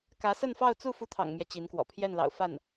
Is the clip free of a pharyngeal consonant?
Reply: yes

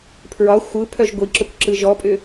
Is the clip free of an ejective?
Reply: no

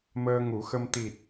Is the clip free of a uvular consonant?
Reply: yes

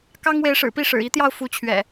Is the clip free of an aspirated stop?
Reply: no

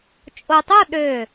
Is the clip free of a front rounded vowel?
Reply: no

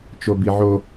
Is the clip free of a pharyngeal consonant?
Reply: no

